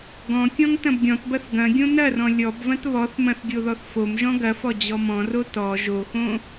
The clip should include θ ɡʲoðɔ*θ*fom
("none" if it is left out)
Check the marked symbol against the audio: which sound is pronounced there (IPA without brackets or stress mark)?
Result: θ